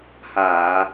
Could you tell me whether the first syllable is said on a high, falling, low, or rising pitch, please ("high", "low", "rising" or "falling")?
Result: low